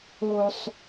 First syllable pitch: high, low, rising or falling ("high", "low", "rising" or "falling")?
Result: low